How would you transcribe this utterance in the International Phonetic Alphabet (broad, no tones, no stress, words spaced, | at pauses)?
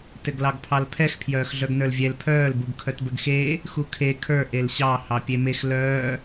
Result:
tɘɡlɑɡpʰɑlpʰɛx pʰjœːxɮœɡnə˞lvʲɛl pʰœːl buɡkʰœtbɘɡxeː | xukʰe kʰə˞ ʔelɕɑ hɑpʲemex lœː